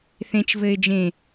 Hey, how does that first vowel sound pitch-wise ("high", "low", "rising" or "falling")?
low